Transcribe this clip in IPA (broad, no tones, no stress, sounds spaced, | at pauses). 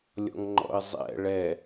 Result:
lʲ ɔ̰ ŋ ŋ͡ǃ ɔ̰ ɪ̯ zˤ ɛ̰ ɭ ɛ